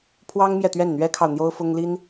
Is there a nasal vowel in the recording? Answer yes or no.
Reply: no